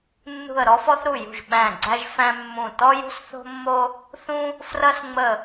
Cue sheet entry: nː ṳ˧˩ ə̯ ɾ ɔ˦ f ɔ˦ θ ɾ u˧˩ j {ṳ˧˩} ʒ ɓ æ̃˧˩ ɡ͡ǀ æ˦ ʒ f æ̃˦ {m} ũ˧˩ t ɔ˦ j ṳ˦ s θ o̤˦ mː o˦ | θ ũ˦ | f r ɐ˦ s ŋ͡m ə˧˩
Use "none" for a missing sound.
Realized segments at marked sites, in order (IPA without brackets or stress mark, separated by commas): ṳ˧˩, mː